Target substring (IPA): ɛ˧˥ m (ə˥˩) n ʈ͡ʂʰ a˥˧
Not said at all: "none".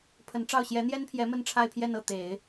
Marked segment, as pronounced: ə˥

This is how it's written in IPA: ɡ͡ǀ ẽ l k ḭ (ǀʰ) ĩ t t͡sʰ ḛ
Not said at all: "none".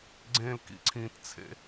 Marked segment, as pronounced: ǀʰ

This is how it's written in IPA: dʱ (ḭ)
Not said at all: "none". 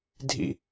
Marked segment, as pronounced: ḭ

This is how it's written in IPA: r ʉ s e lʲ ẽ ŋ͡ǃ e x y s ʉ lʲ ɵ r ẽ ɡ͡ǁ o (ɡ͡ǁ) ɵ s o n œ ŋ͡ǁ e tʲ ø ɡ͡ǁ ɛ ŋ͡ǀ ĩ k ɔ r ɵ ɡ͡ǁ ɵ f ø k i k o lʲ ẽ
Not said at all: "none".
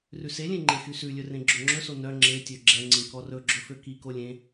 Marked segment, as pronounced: ŋ͡ǁ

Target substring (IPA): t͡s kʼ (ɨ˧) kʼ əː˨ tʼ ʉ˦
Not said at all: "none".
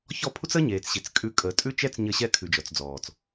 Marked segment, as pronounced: ʉ˧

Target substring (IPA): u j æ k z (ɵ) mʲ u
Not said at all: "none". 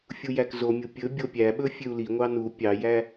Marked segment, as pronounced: o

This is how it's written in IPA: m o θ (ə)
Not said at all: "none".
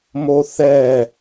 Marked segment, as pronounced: ɛ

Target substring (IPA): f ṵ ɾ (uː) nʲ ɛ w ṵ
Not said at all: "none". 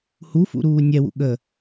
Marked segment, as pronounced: uː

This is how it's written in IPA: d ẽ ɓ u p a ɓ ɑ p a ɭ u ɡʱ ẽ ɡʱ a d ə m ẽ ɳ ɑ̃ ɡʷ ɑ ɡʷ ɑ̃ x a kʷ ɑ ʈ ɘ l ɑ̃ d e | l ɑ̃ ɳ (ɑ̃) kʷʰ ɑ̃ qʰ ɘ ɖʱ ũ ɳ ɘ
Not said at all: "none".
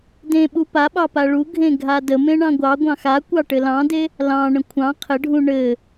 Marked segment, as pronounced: ə̃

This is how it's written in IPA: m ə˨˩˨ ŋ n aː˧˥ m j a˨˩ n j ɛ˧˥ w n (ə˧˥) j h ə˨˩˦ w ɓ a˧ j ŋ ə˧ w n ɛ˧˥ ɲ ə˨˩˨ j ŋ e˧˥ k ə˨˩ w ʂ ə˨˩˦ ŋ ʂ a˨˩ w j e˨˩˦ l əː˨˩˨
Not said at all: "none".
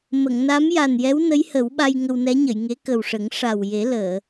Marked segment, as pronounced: ə˧˥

